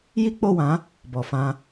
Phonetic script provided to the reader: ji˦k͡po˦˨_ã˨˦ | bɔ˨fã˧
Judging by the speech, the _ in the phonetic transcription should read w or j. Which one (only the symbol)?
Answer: w